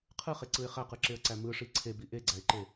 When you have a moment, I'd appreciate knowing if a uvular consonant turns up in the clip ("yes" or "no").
yes